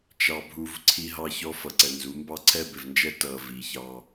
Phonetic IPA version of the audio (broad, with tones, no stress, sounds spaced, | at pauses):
t͡ʃ ɑ˦ bʱ u˦ v ǀʰ i˦ ɦ ɑ˦ ç ɔ˦ f ʌ˨ ǀ ɛ˨ n z u˨˦ m b ɑ˦ ǀʰ ɛ˦ b ɪ˨ v n d͡ʒ ɛ˦ t ʌː˨ v i˨ ç ɑ˦